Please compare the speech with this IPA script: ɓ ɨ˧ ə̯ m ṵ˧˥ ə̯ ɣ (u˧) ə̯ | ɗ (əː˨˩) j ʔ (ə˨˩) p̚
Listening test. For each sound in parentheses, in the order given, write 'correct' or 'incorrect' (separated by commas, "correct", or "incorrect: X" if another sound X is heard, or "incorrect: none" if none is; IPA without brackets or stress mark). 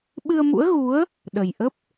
incorrect: u˨˦, incorrect: ə˨˩, incorrect: ə˦˥